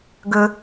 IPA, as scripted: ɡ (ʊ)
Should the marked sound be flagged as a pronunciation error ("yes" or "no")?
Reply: yes